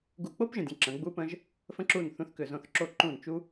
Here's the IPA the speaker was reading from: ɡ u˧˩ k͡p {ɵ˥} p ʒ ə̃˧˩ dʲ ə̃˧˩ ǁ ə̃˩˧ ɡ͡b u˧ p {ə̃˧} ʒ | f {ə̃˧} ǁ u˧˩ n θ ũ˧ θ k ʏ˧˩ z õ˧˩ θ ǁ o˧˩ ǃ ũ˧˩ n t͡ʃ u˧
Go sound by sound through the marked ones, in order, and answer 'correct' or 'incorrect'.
incorrect, correct, correct

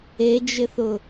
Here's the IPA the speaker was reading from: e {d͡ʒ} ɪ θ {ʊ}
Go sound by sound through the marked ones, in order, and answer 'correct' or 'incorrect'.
correct, correct

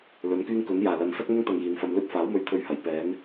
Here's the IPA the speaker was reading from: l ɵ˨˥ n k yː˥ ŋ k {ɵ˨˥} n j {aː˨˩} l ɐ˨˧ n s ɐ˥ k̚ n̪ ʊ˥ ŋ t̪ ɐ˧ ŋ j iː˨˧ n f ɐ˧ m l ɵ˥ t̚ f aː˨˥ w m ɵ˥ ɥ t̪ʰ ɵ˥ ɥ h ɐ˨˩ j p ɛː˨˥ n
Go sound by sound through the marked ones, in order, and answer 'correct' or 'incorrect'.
correct, correct

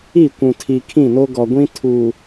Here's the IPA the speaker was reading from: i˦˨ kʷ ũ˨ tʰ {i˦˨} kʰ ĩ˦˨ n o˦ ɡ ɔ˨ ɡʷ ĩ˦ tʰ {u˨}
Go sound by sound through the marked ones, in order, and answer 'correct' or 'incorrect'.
incorrect, correct

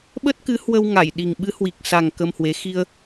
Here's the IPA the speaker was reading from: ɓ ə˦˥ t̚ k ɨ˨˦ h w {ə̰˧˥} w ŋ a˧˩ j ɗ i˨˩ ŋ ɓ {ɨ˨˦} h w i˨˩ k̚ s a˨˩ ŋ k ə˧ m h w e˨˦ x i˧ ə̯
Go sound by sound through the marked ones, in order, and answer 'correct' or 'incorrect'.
incorrect, correct

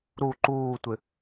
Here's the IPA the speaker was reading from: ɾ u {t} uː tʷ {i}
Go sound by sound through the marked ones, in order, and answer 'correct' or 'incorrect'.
incorrect, incorrect

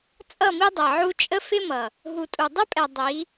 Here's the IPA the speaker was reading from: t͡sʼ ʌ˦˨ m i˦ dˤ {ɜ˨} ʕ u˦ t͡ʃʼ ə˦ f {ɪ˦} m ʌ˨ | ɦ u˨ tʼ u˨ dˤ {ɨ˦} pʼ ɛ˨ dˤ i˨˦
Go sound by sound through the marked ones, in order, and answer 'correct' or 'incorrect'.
incorrect, correct, incorrect

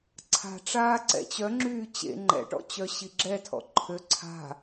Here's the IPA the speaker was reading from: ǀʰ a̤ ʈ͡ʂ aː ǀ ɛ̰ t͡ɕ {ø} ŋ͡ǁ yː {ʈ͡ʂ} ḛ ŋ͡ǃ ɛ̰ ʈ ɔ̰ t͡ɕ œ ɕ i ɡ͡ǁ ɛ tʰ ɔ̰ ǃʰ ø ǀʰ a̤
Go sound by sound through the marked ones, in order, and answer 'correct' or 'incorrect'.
incorrect, incorrect

